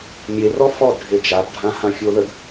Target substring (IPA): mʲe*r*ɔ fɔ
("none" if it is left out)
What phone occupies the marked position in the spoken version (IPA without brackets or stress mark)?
r